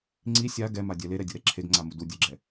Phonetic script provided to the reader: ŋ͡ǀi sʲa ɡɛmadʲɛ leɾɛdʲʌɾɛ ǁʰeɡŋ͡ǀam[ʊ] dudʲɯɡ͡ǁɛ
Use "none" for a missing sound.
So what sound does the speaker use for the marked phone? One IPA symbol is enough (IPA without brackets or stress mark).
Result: u